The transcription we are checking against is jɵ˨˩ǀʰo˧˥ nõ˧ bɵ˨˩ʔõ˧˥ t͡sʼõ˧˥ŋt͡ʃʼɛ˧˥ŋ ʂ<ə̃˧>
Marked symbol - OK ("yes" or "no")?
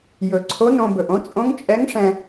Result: no